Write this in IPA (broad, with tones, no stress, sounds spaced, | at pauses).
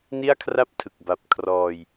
n i˥˩ a̯ kʰ r a˥˩ p̚ tʰ ɯ˨˩ k̚ b a˨˩ p̚ kʰ r ɔː˧ j